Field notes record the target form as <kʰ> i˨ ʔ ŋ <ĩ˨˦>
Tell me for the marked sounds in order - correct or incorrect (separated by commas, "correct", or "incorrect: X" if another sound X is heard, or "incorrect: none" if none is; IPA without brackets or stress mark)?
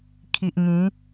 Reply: correct, correct